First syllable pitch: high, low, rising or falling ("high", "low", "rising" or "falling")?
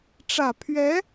low